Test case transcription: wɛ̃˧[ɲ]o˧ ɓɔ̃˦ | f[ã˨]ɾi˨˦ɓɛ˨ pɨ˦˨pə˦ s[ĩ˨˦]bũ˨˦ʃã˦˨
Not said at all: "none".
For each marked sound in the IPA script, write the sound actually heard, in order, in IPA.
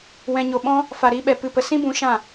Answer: ɲ, a˨, ĩ˦

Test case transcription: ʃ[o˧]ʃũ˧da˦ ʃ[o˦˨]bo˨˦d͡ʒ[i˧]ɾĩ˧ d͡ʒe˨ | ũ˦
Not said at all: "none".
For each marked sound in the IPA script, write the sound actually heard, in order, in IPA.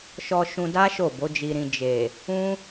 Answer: ɔ˧, o˦˨, i˧

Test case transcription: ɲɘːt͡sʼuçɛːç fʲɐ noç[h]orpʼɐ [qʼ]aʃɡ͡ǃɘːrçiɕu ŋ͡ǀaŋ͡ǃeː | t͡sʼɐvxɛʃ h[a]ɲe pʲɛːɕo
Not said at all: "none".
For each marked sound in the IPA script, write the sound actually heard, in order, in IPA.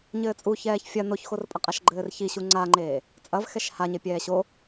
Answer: x, qʼ, a

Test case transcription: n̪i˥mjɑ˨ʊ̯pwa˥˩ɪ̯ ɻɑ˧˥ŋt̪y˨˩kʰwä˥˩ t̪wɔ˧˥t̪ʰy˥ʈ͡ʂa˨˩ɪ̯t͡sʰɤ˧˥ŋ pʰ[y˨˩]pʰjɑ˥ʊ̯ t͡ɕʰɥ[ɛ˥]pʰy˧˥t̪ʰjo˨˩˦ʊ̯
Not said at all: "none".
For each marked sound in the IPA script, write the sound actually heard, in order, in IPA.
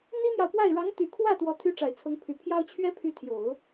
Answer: y˨˩, ɛ˥

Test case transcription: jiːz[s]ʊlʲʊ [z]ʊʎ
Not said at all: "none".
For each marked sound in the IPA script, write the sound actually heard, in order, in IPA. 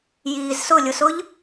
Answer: s, s

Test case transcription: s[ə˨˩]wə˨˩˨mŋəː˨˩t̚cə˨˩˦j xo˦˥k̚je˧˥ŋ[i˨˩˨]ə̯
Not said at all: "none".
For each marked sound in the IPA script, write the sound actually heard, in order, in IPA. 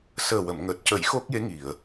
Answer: əː˨˩, i˨˩˨

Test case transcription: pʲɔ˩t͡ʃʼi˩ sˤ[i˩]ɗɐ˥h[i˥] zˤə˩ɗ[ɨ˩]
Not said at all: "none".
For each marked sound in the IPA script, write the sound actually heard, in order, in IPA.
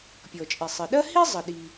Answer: ɨ˩, i˥, i˩

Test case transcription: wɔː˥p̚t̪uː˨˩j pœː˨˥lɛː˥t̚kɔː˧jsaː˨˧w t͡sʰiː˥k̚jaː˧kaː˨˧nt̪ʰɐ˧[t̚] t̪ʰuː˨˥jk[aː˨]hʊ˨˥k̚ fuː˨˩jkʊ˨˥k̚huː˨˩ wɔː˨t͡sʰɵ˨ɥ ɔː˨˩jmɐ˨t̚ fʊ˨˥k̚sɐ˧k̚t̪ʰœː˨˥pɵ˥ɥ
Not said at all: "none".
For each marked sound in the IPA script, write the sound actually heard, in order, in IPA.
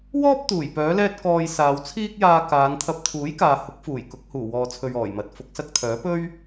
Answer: p̚, aː˨

